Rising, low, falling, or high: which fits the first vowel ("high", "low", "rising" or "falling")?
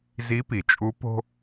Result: rising